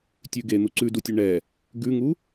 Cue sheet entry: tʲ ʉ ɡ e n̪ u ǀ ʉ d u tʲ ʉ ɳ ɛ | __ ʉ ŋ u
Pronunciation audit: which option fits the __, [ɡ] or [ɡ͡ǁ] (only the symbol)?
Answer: ɡ